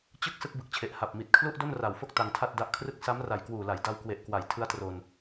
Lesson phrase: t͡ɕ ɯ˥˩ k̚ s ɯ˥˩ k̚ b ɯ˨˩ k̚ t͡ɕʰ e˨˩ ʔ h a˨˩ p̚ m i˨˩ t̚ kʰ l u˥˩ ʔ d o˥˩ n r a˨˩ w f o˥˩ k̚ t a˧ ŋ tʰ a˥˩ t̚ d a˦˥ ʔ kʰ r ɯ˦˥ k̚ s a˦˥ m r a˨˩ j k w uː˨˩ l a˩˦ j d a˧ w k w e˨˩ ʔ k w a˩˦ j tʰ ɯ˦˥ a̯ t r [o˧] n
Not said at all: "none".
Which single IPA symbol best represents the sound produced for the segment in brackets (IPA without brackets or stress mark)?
o˧